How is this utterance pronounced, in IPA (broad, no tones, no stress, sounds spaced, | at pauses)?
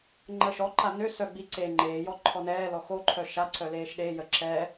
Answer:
ŋ͡ǃ ə ʃ ɔ ǃ a n ø s œ ɡ͡b i ǀ e ŋ͡ǃ eː j ɔ ǃʰ ɔ n ɛː l ɔ x o ǃʰ œ ʃ a ǀ œ l eː ʃ ɗ e j ə ǁ ɛ